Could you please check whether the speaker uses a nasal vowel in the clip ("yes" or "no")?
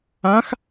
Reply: yes